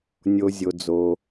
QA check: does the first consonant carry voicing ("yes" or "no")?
yes